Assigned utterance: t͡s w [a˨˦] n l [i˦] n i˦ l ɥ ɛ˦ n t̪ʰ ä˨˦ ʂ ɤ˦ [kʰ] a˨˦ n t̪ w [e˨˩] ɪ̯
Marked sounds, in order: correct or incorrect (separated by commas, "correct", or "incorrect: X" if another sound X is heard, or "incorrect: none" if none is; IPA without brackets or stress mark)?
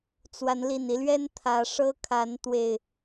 correct, incorrect: i˨˩, correct, correct